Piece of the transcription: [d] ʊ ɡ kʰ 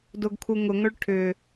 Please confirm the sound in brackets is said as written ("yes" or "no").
yes